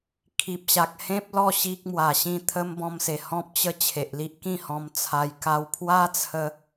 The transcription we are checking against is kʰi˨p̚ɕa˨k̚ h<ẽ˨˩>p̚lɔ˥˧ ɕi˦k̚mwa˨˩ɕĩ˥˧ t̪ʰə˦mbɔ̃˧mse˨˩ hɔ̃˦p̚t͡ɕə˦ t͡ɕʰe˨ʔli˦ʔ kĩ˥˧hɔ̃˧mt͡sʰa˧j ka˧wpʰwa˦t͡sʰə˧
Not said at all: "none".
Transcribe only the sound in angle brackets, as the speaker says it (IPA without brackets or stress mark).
ẽ˦